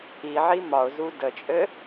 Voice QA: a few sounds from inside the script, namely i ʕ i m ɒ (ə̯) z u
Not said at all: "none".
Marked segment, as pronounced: ʊ̯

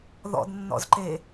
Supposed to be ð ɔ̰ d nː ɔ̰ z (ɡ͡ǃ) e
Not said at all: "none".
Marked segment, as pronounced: ǃ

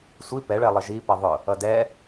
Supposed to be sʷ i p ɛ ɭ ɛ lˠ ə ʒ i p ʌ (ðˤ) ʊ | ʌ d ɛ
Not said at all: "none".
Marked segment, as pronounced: ðˤ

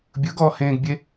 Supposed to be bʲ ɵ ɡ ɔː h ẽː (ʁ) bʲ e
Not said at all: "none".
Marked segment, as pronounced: ɡ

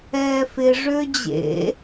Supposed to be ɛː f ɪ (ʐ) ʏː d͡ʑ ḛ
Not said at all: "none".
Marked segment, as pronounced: ʐ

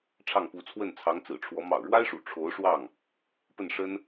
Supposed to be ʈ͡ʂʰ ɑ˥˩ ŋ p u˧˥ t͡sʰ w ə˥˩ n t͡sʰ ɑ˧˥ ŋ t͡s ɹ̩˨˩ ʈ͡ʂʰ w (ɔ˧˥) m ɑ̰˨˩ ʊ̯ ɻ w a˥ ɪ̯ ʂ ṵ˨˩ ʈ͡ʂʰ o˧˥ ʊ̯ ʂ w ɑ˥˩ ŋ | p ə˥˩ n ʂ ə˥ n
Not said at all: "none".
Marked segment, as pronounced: ɔ˧˥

